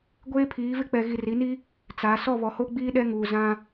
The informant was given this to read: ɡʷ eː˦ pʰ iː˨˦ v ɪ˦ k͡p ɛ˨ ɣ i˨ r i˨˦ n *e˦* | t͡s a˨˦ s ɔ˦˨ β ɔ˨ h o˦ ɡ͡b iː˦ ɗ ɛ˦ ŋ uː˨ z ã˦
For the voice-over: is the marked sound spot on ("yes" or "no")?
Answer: no